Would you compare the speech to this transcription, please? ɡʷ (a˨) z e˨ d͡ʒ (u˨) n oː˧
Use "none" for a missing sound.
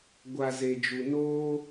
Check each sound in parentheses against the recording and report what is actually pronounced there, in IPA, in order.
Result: a˨, u˨

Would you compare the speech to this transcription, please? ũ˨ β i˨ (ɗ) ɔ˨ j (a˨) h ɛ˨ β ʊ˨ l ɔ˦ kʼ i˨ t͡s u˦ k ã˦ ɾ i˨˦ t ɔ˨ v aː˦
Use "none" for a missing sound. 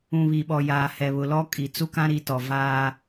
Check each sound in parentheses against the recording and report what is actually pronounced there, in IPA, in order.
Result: ɓ, aː˨

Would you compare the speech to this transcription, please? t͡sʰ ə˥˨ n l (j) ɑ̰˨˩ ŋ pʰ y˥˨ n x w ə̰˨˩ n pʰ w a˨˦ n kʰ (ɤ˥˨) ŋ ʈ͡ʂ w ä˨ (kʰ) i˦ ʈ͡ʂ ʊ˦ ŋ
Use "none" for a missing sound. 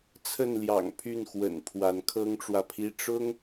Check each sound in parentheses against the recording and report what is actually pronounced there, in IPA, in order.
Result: j, ɤ˦, pʰ

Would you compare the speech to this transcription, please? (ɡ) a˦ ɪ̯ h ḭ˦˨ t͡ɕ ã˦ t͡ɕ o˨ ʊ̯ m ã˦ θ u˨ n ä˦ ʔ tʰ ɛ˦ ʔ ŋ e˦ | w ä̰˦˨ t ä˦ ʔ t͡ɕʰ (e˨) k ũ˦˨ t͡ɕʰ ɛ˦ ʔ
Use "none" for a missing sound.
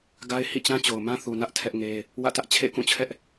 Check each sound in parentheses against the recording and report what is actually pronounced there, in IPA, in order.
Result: ɡ, ḛ˦˨

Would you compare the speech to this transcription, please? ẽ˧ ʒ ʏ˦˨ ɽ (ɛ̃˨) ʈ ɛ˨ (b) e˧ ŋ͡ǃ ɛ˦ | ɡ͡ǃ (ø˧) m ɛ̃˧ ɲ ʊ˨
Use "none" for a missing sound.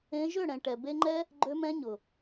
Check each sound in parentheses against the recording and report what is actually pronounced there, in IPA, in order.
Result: ɛ̃˨, b, ø˧

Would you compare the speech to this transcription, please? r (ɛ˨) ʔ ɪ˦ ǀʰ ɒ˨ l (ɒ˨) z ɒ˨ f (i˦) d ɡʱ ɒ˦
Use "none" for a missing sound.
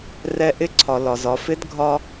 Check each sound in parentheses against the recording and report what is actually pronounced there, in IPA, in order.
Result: ɛ˨, ɒ˨, ɪ˦

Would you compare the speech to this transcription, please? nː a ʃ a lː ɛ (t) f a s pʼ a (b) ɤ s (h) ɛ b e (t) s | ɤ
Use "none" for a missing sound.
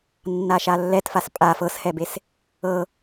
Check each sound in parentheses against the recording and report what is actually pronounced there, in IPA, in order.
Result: t, f, h, none

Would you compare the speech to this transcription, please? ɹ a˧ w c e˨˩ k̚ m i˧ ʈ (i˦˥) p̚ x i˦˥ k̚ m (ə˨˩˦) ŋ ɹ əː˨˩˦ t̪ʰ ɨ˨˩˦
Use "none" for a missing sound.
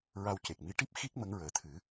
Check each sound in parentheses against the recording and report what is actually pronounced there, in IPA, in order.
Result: i˦˥, ə˧˥

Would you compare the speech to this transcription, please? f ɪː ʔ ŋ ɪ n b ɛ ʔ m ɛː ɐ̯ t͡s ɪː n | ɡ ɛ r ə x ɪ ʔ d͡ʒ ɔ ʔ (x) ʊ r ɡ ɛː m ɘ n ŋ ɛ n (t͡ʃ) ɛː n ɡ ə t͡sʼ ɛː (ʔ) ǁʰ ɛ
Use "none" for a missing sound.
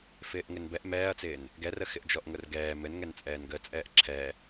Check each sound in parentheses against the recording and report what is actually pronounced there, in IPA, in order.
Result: ŋ, t͡sʼ, ʔ

